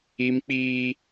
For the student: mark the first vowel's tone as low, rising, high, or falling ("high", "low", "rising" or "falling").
high